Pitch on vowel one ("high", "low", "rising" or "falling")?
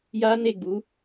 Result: high